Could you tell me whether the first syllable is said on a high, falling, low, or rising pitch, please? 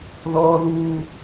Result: high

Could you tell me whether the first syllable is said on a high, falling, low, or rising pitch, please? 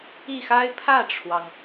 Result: falling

